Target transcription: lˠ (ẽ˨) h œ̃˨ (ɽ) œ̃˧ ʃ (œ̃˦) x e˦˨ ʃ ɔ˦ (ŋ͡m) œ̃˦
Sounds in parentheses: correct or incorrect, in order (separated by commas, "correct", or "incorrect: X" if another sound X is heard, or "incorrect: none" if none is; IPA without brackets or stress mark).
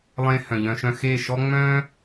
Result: incorrect: ẽ˧, incorrect: ʎ, incorrect: œ̃˧, correct